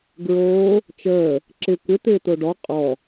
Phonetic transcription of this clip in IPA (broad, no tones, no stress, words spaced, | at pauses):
ɡɹoː | t͡ʃəː | ǁɪ kʷɪ t̪ɪːt̪oɖɔ qʼɔ